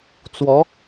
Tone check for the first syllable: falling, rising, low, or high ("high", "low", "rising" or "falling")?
rising